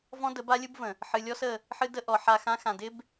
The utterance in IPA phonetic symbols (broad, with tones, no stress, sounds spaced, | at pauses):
v ɔ̃˦ d ə˨˦ b a˦ lʲ ɯ˦ b v ə̃˨ | ħ ɨ˨ lʲ ɔ˦ s ə˦˨ | ħ ɨ˦ d ə˦ ʔ ɔ˨ ħ a˦˨ x ã˦ x ã˨ d ɪ˦ b